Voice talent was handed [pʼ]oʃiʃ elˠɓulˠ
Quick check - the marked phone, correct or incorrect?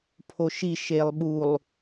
incorrect